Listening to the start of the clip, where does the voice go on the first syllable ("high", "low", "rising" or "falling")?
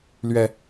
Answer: low